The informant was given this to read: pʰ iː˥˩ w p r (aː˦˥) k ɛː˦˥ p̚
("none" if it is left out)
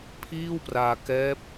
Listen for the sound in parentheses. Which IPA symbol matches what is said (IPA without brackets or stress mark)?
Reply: aː˧